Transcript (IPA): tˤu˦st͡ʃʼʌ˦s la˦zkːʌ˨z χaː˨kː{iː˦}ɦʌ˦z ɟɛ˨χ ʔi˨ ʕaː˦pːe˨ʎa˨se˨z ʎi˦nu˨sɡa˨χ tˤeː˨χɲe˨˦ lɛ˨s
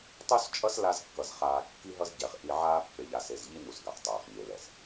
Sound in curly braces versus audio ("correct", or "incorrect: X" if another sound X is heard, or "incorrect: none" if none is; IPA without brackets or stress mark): incorrect: i˦